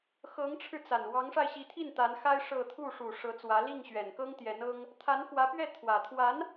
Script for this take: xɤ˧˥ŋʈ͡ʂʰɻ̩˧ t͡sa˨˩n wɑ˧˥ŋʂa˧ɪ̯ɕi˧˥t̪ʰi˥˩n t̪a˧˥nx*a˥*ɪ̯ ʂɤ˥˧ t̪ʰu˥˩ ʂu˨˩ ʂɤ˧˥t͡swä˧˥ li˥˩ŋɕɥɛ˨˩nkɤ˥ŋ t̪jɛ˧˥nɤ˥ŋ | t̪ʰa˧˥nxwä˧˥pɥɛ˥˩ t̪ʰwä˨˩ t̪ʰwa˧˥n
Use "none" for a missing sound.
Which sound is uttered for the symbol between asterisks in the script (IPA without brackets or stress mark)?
a˥